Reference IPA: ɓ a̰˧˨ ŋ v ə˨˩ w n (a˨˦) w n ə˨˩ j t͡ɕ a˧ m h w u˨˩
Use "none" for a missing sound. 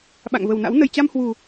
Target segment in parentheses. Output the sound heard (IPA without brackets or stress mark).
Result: a̰˧˥